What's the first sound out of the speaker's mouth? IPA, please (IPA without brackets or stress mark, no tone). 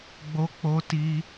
ɡ͡b